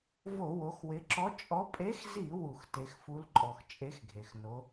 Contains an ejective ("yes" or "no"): yes